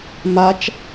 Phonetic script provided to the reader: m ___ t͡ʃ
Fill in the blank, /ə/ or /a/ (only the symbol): a